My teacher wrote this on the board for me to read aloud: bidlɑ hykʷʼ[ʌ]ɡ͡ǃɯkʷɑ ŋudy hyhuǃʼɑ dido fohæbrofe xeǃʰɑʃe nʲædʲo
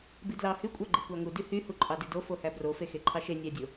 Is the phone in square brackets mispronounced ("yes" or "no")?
yes